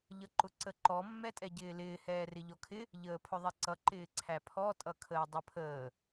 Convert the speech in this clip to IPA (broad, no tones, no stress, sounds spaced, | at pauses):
ʎ ʌ ǃ ʊ ǀ ə ǃ ɔ mː ɛ tʼ ɛ ɟ ɪː l ɪː h ɛː r ɪ ʎ ɔ kʰ ɪ | ʎ əː pʰ ʊ ðˤ ɛ ǀ ʌ ǃ ɪː ǀʰ æ pʰ ɔ tʼ ʌ kʰ əː dˤ ə pʰ əː